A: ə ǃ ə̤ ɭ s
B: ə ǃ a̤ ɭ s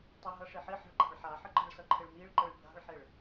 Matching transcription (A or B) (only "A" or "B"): A